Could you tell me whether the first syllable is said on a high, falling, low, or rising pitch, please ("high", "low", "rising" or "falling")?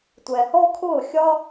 low